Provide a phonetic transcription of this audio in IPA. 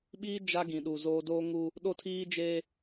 ɓ iː˦ d͡ʒ a˦ ɡ ĩ˨ ɗ u˨ z oː˦ d oː˦ ŋ u˦ | ɗ o˦ tʰ iː˦ d͡ʒ e˦

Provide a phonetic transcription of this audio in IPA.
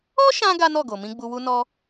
ɔ˦ ʃ ã˧ ɡ a˦ n ɔ˦˨ ɡ o˨ m ĩ˧ ɡ͡b u˧ w u˦ n ɔ˦

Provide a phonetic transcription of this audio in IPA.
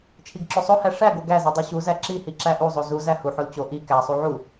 t͡ʃʰ i ɡ ǁ o sˤ o h æ ʂ æ ɡ o ɡ æ z i dˤ i ɕ u z æ ǁ i h i ǁ æ ʔ u zˤ o z u z æ h u ħ o l t͡ɕ o ʔ i k æ sˤ u ʕ u

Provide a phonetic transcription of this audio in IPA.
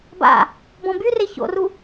b a̰ | b ɔ̃ b y r e ç o̰ r u

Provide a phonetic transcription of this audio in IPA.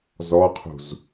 z ɔ qʰ ṳ z

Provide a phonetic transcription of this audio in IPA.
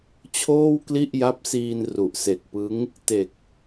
t͡ɕʰ oː˥˩ w k l i˥˩ ʔ j a˦˥ p̚ s iː˧ n r u˨˩ ʔ s e˨˩ k̚ p ɯ˦˥ ŋ | t e˨˩ k̚

